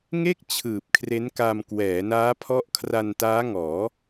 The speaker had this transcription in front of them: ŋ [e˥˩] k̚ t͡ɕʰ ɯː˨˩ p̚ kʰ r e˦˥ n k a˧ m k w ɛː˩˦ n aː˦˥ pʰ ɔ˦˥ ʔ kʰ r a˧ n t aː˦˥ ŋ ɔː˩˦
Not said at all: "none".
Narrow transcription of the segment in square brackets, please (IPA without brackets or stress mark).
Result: e˥˩